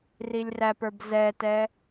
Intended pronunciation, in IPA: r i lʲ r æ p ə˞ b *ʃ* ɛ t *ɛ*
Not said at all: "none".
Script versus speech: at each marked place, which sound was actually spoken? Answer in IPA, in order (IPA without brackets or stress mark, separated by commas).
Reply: z, ɛ